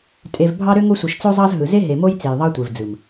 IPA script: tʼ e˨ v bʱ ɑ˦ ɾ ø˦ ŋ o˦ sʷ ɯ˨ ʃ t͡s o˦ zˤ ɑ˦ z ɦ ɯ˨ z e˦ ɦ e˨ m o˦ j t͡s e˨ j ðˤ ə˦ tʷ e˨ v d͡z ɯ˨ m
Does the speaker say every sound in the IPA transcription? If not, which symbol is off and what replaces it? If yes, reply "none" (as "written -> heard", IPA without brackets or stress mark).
ə˦ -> ɑ˦